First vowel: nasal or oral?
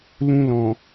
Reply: nasal